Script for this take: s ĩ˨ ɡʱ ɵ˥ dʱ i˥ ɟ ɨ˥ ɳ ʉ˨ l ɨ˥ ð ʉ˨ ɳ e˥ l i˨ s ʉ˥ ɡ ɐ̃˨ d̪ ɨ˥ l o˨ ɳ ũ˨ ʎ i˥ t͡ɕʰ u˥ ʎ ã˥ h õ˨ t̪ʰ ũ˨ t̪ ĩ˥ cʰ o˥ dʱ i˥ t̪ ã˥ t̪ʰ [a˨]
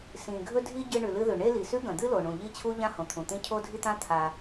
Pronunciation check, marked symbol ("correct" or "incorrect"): correct